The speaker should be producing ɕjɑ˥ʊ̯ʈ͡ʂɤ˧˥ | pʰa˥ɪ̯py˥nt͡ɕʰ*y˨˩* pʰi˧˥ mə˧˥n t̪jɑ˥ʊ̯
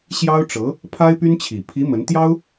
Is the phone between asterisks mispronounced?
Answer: yes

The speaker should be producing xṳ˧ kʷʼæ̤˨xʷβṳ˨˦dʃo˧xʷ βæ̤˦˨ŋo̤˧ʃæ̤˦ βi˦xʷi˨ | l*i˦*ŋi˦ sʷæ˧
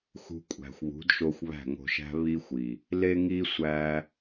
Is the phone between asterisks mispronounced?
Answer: yes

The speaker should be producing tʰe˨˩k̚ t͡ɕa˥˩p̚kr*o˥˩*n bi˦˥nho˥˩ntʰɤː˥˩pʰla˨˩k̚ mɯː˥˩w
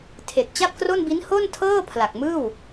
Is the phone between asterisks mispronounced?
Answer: no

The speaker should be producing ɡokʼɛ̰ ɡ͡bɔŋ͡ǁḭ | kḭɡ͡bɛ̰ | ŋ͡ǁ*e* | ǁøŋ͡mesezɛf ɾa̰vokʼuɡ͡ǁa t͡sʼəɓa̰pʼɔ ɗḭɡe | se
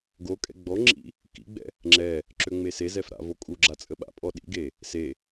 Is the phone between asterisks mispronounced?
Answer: yes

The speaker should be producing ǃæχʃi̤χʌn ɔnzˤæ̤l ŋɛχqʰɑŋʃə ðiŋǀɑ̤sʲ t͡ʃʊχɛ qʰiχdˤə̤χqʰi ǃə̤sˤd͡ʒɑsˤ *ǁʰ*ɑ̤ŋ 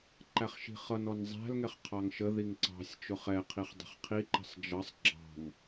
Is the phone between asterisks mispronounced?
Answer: yes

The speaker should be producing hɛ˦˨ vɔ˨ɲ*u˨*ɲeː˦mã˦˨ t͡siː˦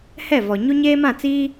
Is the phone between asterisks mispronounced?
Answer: yes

